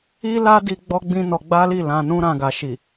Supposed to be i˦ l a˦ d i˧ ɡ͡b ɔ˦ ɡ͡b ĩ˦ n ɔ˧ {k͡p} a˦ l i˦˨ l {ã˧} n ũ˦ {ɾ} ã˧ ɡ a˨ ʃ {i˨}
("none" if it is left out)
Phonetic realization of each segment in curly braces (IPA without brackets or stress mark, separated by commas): ɡ͡b, ã˧, ɾ, i˨